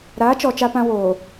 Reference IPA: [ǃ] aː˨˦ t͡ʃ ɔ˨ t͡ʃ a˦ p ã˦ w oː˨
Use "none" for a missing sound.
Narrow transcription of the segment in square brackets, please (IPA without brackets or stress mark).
ɾ